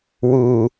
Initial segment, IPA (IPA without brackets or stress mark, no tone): w